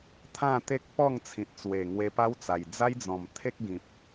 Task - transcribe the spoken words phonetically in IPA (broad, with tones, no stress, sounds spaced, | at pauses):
t̪ʰ ã˥˧ t̪ e˦ k̚ p ɔ˥˧ ŋ t͡sʰ ĩ˨ t̚ t͡s w e˨˩ ŋ w e˧ p a˦ w t͡s a˨˩ j d͡z a˦ j d͡z ɔ̃˨˩ m t̪ʰ e˦ k̚ ɡ ĩ˨ p̚